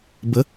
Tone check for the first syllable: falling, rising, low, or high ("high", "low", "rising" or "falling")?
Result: rising